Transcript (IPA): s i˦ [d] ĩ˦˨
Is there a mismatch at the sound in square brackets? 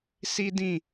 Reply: no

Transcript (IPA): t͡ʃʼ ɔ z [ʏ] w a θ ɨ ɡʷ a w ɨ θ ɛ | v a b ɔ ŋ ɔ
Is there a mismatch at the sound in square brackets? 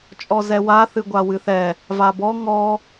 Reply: yes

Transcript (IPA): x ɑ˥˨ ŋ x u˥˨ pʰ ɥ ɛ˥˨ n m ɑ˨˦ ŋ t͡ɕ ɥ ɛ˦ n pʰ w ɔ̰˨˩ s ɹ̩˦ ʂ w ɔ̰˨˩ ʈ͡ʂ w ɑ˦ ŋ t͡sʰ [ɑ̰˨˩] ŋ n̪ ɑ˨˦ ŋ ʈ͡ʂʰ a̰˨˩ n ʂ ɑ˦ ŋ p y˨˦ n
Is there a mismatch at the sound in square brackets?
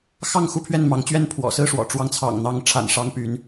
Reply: no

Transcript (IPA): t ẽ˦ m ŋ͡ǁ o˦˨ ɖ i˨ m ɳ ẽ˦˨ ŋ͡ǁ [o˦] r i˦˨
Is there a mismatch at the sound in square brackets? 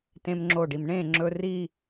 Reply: yes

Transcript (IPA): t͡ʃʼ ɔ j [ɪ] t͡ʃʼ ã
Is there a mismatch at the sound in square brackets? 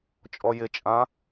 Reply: no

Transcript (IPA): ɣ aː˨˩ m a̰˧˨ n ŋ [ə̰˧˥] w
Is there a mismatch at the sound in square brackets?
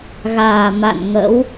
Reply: no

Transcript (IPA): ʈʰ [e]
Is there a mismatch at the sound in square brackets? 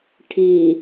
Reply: yes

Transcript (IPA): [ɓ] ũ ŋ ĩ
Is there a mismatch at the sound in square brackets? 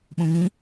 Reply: no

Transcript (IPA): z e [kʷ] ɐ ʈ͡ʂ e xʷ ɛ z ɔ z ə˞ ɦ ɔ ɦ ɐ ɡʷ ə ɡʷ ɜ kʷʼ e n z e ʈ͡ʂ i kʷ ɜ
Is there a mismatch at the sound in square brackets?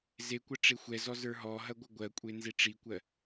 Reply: no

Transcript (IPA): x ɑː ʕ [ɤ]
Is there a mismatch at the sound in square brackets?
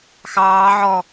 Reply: yes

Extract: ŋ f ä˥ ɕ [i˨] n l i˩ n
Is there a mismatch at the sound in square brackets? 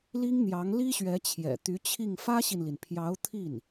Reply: no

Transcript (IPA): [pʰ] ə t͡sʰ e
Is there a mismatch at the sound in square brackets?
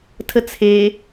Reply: yes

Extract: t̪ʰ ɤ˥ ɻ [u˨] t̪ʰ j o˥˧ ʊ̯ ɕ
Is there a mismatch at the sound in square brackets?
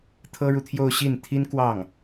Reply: no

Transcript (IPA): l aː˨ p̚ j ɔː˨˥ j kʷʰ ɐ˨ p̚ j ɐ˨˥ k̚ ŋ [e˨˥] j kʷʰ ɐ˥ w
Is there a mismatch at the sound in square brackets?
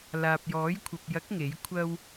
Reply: no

